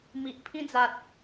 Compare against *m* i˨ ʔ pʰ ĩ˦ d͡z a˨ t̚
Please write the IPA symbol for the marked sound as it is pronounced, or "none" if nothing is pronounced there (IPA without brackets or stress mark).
m